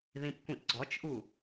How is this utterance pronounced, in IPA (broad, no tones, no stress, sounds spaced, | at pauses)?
ð ĩ p kʷ ĩ ʔ ɡ͡ǀ ɔ t͡ʃ ʔ u